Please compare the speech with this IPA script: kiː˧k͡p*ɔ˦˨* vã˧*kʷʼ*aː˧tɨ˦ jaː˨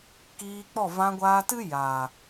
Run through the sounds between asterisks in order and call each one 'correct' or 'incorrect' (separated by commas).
correct, incorrect